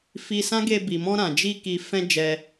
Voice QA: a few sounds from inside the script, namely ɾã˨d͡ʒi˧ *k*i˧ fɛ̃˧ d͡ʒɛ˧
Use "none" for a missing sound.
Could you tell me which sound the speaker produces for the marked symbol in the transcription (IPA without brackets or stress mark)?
k